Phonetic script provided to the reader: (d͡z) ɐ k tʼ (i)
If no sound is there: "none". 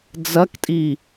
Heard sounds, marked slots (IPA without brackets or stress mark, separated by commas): d͡z, i